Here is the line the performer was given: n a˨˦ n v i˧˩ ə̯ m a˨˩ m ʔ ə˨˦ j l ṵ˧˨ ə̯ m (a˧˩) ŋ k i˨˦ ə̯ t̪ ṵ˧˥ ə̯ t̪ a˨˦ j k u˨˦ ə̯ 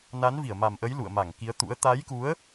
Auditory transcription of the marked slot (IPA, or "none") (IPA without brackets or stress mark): a˧˩